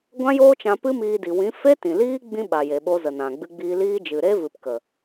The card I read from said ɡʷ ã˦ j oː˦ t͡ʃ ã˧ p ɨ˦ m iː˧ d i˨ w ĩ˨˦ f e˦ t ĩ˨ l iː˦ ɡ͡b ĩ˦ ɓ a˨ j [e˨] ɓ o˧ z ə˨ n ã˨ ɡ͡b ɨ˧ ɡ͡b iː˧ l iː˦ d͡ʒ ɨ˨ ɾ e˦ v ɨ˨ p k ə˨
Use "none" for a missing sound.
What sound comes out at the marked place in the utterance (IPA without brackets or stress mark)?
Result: e˨